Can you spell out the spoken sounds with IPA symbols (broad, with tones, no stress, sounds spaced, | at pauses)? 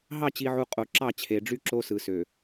ɦ ɑ˦˨ t͡ɕ i˨ ʕ u˨ qʼ o˨ ǁ ɑ˦˨ t͡ɕʰ e˨ ɖ͡ʐ y˦ ǁ o˦ s ɯ˨ s ø˨